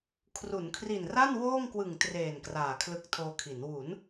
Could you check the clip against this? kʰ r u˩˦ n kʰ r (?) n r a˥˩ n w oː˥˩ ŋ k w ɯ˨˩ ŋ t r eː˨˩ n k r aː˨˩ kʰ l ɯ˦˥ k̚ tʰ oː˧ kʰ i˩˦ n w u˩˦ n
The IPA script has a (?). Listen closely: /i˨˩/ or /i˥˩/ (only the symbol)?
i˨˩